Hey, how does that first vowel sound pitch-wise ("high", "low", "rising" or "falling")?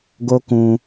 high